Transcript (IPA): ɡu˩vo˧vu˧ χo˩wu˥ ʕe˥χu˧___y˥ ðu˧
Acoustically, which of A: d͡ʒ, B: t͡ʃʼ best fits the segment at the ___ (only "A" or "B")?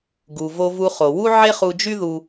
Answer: A